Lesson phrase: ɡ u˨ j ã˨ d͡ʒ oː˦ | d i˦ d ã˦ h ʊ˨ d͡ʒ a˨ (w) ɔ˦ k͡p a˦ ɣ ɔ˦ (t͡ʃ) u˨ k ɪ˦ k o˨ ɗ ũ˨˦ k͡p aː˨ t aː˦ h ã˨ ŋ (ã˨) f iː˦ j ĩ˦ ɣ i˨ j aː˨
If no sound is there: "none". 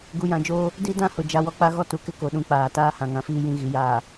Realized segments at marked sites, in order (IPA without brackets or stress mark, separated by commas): w, t, ã˨